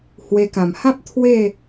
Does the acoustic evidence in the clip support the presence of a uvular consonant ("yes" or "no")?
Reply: no